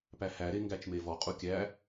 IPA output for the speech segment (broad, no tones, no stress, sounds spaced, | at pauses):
p æ h æ ɾ e ŋ ɡ æ t͡ʃ m e v ɔ qʼ u kʲ æ